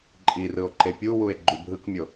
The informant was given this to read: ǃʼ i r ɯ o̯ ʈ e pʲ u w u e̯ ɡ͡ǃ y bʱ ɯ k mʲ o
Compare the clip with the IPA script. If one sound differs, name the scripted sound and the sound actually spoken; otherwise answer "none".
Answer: ʈ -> ǃ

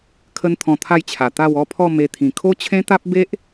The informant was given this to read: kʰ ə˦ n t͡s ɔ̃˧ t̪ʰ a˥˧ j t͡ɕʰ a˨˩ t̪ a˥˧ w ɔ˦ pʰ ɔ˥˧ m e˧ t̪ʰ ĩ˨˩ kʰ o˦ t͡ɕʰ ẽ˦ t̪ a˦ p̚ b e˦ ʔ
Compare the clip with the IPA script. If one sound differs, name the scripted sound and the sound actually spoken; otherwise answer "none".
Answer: t͡s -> t̪ʰ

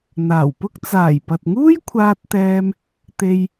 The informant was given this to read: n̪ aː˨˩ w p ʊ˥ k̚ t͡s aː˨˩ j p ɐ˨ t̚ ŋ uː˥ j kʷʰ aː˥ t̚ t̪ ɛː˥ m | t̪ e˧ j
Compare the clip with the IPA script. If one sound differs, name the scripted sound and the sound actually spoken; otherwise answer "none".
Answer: none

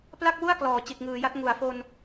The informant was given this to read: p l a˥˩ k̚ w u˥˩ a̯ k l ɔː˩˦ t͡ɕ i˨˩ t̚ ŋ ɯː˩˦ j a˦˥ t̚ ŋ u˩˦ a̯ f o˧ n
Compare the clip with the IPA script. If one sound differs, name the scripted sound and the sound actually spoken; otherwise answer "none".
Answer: none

